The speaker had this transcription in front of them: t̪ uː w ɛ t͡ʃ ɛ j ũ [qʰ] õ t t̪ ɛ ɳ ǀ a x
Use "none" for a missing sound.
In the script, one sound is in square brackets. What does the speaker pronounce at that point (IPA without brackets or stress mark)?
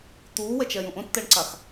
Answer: ʔ